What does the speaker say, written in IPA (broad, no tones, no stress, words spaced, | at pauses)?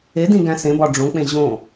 edĩɡæ̃ sẽbɒ ɖ͡ʐõk͡pẽ ʑõ